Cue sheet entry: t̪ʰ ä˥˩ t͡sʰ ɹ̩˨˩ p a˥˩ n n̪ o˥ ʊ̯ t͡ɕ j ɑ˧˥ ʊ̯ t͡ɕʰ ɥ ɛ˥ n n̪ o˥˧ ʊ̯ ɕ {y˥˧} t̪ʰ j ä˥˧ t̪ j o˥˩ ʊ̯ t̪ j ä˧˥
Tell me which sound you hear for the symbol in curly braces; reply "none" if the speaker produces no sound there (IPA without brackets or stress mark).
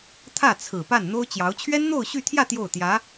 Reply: y˥˧